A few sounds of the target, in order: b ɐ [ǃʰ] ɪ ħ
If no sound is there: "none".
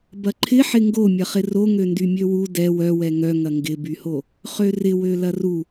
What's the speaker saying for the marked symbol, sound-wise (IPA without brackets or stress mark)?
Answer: ǃʰ